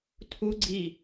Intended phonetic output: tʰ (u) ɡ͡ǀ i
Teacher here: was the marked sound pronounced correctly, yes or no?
yes